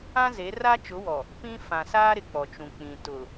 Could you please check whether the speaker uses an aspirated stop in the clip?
no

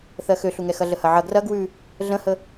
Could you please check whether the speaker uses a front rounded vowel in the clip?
yes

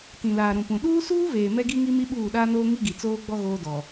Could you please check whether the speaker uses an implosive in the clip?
yes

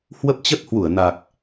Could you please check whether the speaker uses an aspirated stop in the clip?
no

